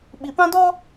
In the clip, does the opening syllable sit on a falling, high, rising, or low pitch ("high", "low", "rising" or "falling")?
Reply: low